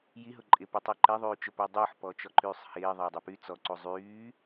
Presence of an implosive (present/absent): absent